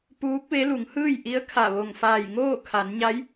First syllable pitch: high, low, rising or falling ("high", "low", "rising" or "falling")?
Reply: rising